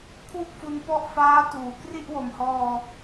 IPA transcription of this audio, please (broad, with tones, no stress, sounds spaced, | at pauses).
kʰ w u˥˩ k̚ f u˧ n p ɔ˥˩ ʔ f aː˦˥ t uː˩˦ k r i˥˩ ʔ w o˨˩ m h ɔː˧